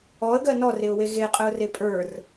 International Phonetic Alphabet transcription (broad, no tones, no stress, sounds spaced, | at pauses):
ɔ ə̯ ɡ ɜ n ɔ r e ʊ̯ w e ɣ e qʼ ə ʊ̯ r e pʼ ə˞ r